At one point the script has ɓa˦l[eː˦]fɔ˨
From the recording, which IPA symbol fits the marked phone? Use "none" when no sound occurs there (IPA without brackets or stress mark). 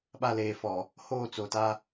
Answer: eː˨˦